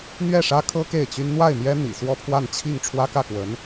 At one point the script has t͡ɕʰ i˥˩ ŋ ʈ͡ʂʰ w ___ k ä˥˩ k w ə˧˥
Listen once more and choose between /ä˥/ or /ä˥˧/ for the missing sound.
ä˥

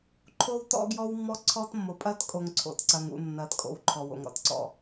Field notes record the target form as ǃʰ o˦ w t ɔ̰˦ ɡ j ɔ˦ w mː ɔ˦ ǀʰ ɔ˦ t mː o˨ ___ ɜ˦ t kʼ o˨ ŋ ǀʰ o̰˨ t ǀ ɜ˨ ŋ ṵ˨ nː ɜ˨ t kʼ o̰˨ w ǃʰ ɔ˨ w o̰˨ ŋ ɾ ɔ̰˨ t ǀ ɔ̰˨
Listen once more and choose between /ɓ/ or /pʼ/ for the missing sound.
pʼ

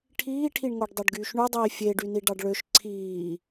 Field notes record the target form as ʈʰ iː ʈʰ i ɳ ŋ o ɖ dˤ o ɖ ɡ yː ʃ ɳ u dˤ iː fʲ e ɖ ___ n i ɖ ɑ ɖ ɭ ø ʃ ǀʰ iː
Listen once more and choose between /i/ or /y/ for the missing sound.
y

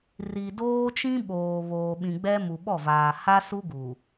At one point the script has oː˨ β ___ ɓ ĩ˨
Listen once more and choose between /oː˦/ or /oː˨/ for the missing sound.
oː˨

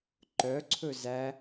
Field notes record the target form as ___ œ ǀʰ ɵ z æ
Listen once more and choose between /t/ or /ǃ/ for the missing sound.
ǃ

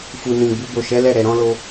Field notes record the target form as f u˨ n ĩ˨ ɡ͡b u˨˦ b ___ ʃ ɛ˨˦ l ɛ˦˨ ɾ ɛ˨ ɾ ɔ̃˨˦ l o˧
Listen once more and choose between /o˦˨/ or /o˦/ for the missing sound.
o˦˨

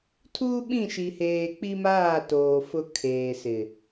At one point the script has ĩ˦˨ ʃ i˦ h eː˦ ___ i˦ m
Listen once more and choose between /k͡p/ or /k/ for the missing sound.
k͡p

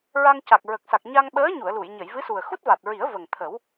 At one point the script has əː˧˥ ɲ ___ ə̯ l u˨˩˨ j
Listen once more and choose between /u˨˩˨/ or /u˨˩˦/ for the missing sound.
u˨˩˨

